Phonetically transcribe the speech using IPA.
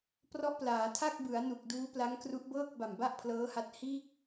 p r ɔ˦˥ ʔ p l aː˩˦ tʰ a˥˩ k̚ b ɯ˩˦ a̯ n u˨˩ k̚ d uː˦˥ p l a˦˥ ŋ k r u˦˥ ʔ b ɤː˥˩ k̚ b a˨˩ m b a˥˩ ʔ pʰ l ɤː˦˥ h a˦˥ t̚ h iː˥˩ k̚

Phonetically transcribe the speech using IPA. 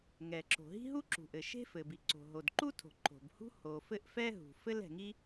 ŋ ɛ˩ ǁ o̤˩ ɦ i̤˥ ɦ u˥ ǁ ṳ˩ ʔ ɘ˩ ʃ e̤˥ f ɘ˩ b i˩ ǀ o̤˩ ɦ o˩ d ǃ u˥ tʰ o̤˩ ǃ o̤˩ b h ṳ˥ h o˩ f ɘ˥ ʔ f ɛ˥ ɦ ṳ˩ f ɘ˥ l ɛ̤˩ ŋ i˥

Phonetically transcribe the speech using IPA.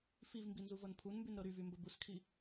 f i v m b i n z u v ɤ n pʰ u n m b y n ɾ ɤ ɾ y v y m b ə b u s kʰ i

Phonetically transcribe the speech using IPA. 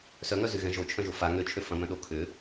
s œ ŋ œ z y ɣ ɛ̃ ʒ o t͡ʃʰ œ̃ ʒ o f a ŋ ø t͡ʃʰ ø f ɐ̃ m œ̃ ɗ o kʰ ʏ

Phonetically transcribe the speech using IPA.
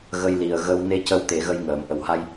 ɣ ə˧ j l i˨˩ ə̯ ɣ ə˧ w n e˧˥ c ə˧˥ w t̪ e˨˩˦ ɣ ə˧ j ŋ əː˨˩˨ m ʔ ə˨˩ w h a˧ j

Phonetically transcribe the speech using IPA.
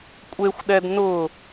kʷʼ e xʷ ɗ ɛ d n ʊ

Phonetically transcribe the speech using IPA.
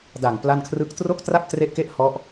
d a˨˩ ŋ p l a˥˩ n kʰ r ɯ˥˩ k̚ t r o˥˩ k̚ t r a˥˩ p̚ t r e˦˥ ʔ k e˦˥ ʔ h ɔ˦˥ ʔ

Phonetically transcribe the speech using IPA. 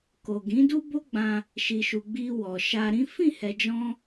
k o˨ ɡ ĩ˨˦ d u˦ b o˦ ɡ͡b ã˧ | ʃ i˨ ʃ u˨ ɡ͡b i˧ w ɔ˨ ʃ a˧ ɾ ĩ˦ f ĩ˦˨ h ɛ˨ d͡ʒ ɔ̃˧

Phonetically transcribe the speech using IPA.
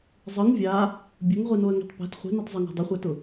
zˤ ɯ ŋ vʲ a | bʲ ʊ ŋ ʁʷ i n o ə̯ ŋ i̤ tˤ p æ̤ t χʷ i̤ n i tˤ zˤ ʊ ŋ æ̤ dˤ ʊ χʷ æ t ʊ

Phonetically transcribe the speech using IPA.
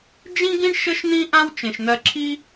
d͡ʒ ĩ˥ ɡ ĩ˥ ɳ ʃ ə˥ ʃ n̪ ĩ˥ ʔ ã˥ w t͡ʃ ẽ˩ ʃ n̪ ɜ˧ ǁʰ i˥

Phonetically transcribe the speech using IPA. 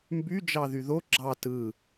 m b y d͡ʒ ɑ ð y ð o ɡ͡ǁ ɑ t ɯ

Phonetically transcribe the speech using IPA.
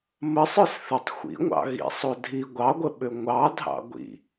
m ə sˤ ə˞ s θ ə tˤ xʷ ḭ ŋʷ ɑ̰ ɣ ḭ sˤ o dʱ i ɡʷ ɑ ɡʷ ə ɓ ʏ ŋʷ ɑ dʱ ɑ̰ ɡʷ ḭ

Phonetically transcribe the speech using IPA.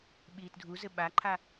ɓ iː t dʱ u z ɘ ɓ a ǃʰ a

